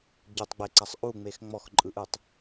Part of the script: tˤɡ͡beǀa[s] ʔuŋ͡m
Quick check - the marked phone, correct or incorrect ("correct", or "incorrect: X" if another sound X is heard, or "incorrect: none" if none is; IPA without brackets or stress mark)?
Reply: incorrect: sˤ